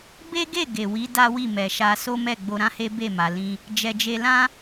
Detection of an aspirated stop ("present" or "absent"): absent